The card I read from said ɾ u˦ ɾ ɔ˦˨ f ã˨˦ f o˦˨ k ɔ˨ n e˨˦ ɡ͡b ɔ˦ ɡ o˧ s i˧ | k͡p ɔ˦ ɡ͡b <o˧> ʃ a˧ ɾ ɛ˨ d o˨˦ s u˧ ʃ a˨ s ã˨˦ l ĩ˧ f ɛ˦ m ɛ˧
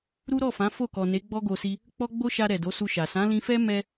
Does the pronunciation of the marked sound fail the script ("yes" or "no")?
yes